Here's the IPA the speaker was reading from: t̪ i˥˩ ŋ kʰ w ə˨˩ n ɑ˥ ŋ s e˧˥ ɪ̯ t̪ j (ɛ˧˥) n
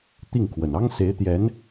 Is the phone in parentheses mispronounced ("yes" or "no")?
no